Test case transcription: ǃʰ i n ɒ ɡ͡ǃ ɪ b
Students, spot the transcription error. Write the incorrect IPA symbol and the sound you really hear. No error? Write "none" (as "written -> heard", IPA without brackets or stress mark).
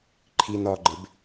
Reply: none